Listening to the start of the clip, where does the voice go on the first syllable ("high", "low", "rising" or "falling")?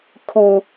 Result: high